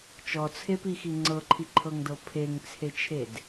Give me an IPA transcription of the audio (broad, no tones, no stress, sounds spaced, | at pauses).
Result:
t͡ʃ ɔ t͡sʰ e p i x i ŋ͡ǀ ɤ ǃʰ i ǃʰ ɤ ŋ d ɤ pʰ e ŋ t͡sʰ e t͡ʃʰ e d